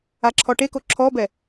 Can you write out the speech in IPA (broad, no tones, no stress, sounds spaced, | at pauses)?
a ǁʰ ɔ ʈ e k o ǁʰ ɔ b ɛ